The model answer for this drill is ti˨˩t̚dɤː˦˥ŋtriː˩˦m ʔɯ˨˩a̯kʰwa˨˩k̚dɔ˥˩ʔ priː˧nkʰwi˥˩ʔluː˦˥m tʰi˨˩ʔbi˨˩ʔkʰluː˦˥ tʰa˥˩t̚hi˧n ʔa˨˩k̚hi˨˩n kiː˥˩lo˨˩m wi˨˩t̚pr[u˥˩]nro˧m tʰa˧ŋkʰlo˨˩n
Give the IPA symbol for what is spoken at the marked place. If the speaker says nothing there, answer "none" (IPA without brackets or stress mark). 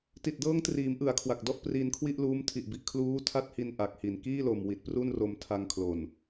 u˥˩